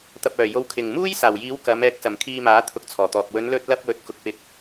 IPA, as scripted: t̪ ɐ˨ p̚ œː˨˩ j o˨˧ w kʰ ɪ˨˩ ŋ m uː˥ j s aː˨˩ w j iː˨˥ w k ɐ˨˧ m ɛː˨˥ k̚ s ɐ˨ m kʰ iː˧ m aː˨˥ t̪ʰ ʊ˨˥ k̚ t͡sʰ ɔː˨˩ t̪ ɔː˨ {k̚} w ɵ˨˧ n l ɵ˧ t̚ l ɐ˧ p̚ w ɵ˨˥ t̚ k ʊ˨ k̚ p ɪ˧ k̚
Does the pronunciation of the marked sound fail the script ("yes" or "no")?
no